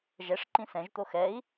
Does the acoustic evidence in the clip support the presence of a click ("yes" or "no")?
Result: yes